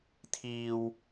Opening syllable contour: high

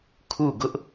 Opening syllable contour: falling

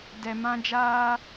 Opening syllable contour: low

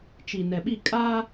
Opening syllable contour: low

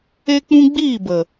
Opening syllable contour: high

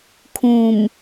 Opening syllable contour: low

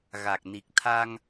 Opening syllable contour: low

